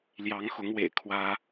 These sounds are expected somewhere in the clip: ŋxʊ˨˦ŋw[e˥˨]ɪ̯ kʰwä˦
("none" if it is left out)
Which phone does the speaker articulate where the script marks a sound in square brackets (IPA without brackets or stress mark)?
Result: ḛ˨˩